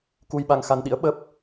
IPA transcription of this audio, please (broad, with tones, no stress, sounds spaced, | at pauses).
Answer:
k u˧ j ɓ a˧ ŋ x a˧ n ɗ ḭ˧˥ ə̯ ɓ ə˦˥ p̚